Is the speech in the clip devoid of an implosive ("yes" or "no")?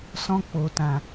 yes